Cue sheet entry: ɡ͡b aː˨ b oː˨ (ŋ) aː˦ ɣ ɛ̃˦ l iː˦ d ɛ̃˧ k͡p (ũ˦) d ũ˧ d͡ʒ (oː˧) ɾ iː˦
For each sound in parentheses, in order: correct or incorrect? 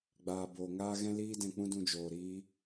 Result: correct, correct, incorrect

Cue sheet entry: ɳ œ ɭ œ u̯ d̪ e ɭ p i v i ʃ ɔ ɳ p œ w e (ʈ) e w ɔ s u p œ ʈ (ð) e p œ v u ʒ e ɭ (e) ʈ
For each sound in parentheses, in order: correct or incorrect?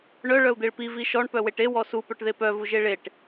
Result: correct, correct, correct

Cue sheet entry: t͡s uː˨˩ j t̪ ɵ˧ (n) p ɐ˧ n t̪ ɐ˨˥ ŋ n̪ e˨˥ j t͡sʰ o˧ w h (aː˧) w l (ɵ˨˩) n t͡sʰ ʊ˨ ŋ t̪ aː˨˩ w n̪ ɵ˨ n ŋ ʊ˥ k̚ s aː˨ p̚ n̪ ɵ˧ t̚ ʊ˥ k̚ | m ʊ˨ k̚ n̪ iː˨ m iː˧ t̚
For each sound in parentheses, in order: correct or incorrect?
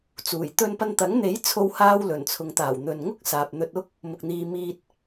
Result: correct, correct, correct

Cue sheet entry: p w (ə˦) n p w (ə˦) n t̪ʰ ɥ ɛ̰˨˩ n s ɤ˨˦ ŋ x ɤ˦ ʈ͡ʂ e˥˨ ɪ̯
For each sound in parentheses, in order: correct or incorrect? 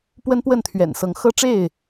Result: correct, incorrect

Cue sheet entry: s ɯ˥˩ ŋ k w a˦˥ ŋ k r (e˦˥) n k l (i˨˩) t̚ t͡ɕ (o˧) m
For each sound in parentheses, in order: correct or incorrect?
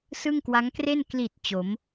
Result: incorrect, correct, incorrect

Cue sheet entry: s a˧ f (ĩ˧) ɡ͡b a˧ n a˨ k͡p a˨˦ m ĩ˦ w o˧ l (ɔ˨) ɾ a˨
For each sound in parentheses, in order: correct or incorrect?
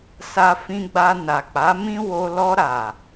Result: correct, incorrect

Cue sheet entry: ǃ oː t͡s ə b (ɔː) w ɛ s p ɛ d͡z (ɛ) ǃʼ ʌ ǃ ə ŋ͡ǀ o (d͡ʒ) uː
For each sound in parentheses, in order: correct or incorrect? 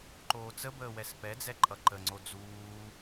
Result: incorrect, correct, incorrect

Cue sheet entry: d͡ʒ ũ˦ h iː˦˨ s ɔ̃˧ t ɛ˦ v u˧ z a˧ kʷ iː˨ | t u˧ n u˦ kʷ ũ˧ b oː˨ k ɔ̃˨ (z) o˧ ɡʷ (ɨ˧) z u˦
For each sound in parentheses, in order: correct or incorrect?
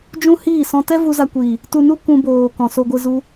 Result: incorrect, correct

